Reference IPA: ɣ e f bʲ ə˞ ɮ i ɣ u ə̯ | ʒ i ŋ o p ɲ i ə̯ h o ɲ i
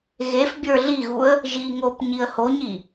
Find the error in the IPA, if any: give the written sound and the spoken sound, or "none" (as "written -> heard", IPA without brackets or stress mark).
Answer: none